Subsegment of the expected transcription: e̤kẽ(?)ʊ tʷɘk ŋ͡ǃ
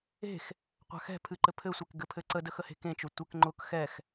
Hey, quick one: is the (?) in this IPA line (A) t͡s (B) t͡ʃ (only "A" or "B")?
B